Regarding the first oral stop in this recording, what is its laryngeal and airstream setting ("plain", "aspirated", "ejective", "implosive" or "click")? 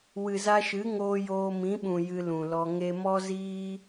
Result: implosive